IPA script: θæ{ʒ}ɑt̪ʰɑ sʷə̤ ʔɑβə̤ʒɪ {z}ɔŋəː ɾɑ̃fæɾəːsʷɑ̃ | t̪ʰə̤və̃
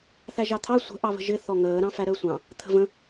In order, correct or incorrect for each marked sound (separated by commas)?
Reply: correct, incorrect